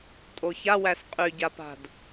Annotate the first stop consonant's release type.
ejective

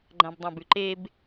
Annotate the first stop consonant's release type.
click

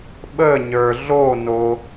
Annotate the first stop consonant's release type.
implosive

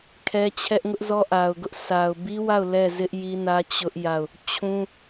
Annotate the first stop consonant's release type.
aspirated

